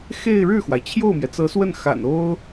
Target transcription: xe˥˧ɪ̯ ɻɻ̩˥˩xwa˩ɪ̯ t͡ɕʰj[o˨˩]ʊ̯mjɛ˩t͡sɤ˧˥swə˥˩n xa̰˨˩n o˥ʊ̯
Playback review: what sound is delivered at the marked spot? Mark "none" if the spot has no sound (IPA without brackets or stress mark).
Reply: o˥˩